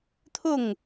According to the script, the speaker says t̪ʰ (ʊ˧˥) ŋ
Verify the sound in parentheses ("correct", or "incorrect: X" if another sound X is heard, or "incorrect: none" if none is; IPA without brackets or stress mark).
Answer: incorrect: ʊ˥˩